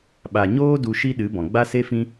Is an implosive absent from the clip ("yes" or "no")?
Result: no